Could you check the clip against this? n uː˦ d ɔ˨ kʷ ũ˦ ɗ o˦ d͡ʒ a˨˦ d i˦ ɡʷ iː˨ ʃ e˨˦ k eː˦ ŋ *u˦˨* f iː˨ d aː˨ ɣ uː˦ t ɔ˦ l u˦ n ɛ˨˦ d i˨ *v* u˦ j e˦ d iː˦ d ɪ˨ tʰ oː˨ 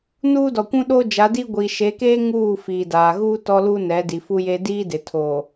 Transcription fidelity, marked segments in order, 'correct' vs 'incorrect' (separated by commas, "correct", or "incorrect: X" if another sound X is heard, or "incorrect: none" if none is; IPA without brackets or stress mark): incorrect: uː˦˨, incorrect: f